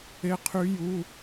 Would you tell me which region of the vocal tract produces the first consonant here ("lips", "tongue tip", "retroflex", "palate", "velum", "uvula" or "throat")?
uvula